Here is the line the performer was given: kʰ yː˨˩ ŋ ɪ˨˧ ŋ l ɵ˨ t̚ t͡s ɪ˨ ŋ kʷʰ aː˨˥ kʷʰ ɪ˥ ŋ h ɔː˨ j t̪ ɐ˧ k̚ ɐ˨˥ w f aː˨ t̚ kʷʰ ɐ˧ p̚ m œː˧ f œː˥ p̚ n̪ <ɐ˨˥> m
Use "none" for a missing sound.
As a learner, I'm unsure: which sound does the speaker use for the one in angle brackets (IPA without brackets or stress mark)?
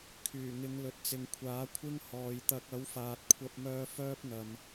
ɐ˨